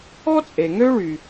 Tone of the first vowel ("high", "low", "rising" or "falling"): high